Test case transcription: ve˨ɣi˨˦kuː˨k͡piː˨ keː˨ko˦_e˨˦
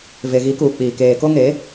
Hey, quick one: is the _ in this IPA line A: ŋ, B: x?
A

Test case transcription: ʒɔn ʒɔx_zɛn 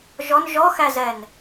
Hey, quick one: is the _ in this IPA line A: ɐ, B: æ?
B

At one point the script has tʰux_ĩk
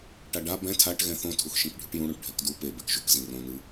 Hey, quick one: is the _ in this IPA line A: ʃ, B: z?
A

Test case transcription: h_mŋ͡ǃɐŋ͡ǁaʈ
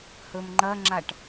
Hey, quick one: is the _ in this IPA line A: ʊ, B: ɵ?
B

